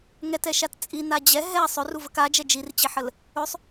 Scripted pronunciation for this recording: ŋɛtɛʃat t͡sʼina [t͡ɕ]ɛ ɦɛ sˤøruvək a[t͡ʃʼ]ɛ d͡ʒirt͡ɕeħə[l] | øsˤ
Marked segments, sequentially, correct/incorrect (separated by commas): incorrect, incorrect, correct